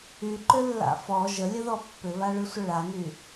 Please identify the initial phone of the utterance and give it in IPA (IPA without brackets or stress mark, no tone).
y